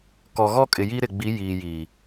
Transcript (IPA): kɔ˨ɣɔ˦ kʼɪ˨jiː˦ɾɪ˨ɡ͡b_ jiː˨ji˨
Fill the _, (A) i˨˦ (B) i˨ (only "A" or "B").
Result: A